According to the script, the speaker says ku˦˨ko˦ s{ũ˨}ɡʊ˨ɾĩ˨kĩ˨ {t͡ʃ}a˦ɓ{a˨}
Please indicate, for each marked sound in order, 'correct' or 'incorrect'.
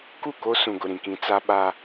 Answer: correct, incorrect, incorrect

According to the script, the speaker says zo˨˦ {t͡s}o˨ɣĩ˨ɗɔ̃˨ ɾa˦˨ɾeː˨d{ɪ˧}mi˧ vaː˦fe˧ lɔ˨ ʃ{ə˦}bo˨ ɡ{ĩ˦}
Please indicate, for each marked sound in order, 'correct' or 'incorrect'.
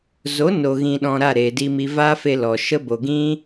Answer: incorrect, incorrect, correct, correct

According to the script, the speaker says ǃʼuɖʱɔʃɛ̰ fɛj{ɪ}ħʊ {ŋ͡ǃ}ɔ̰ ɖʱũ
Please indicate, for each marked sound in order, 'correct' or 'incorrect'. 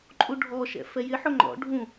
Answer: correct, correct

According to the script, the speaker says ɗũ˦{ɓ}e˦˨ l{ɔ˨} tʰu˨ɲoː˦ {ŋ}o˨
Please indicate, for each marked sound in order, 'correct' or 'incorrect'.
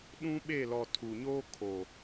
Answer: correct, correct, incorrect

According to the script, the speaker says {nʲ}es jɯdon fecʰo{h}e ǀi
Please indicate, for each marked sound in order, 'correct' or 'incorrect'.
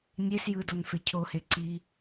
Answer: correct, correct

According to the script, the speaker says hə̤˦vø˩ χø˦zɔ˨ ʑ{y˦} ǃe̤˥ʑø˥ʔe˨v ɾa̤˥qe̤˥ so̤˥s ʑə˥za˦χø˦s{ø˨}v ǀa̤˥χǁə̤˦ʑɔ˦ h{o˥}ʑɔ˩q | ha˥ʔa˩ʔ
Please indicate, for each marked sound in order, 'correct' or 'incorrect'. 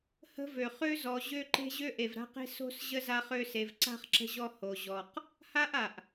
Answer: incorrect, incorrect, incorrect

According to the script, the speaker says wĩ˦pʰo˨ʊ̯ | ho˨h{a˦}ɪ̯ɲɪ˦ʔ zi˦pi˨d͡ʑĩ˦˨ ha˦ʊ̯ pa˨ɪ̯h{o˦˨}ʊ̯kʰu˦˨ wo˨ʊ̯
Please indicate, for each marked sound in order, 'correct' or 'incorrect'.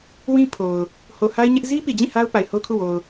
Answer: correct, incorrect

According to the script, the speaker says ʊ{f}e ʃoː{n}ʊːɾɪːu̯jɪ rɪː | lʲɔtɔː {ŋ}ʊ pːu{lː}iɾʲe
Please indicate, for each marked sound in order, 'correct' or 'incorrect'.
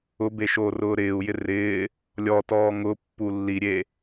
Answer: incorrect, incorrect, correct, correct

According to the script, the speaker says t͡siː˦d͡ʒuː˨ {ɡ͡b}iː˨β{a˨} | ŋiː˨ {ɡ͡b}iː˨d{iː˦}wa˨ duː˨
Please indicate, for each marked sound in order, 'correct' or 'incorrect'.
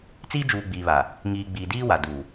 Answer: correct, correct, correct, correct

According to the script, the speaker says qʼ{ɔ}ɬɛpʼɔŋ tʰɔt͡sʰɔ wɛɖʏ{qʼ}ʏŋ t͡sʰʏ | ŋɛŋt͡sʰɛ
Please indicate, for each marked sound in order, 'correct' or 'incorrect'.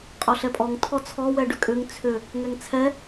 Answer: correct, incorrect

